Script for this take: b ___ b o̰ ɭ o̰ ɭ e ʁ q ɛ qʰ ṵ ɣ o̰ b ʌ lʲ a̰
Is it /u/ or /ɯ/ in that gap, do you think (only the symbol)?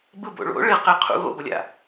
ɯ